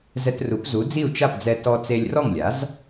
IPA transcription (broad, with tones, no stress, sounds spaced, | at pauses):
z ɛ˧ t r u˩˥ p z u˩˥ d͡z i˥˩ u̯ t͡ʃ a˥˩ p d͡z ɛ˧ t ɔ˧ t͡s e˧ lʲ r ɔ˥˩ ŋ lʲ a˩˥ z